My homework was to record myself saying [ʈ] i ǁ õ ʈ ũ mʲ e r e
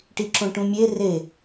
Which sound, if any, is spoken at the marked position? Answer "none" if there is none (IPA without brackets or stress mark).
ʈ